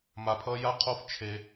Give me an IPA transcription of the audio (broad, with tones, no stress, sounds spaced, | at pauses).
m a˧ pʰ ʌ˦ j a˦ qʰ o˦ f t͡ʃʰ e˧